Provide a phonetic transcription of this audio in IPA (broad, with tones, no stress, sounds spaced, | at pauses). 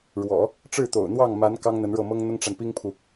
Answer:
ɻ w ɔ̰˨˩˦ | ʈ͡ʂ ɻ̩˥˩ t̪ o̰˨˩ ʊ̯ n̪ w ɑ˥˩ ŋ m a˧˥ n k ɑ˥ ŋ n̪ ə˧˥ n ɻ ɤ˥˩ m ɤ˥ ŋ n̪ ʊ˥ ŋ ʈ͡ʂ a˨ n p i˥ ŋ pʰ u˨